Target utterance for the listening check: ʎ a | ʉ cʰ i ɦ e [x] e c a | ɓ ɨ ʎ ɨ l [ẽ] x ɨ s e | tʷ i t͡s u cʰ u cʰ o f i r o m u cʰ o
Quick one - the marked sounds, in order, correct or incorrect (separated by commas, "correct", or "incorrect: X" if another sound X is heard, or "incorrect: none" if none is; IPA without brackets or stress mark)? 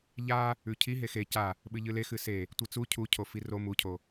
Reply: correct, incorrect: e